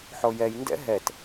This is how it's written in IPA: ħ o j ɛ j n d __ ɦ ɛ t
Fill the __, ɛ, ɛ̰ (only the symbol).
ɛ̰